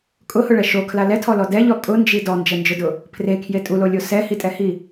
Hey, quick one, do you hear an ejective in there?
yes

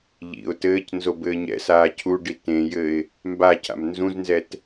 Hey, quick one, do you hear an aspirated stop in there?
yes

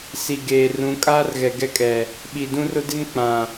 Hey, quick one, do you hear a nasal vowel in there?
yes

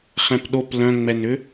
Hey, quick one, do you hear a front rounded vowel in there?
yes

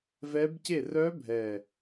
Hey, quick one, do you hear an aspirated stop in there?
no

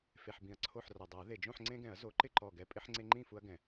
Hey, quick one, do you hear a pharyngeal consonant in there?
yes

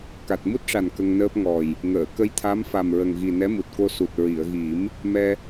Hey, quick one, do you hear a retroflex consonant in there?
yes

